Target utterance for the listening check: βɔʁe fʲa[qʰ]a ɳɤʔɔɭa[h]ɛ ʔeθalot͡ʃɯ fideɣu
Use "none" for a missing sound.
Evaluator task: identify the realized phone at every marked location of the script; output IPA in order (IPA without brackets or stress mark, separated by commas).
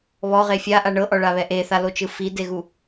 ʔ, β